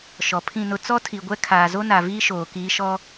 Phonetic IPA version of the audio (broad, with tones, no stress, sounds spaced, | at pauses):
ʃ ɔ˨ pʰ ĩ˦˨ n ʊ˦ t͡s ɔ˦ tʰ i˨ ɡʷ ɛ˦ kʰ aː˨ z o˦ n a˨ v iː˦ ʃ oː˨ k iː˦ ʃ ɔ˦